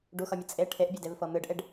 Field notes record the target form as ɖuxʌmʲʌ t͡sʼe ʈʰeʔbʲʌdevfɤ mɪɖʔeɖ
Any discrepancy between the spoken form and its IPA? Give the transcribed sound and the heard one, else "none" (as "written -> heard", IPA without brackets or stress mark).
ɪ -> ɨ